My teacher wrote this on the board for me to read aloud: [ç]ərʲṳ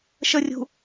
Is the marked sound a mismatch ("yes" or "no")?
yes